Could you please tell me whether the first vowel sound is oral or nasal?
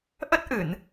oral